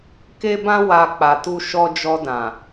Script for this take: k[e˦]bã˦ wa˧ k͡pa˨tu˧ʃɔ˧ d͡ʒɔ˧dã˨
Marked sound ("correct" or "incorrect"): correct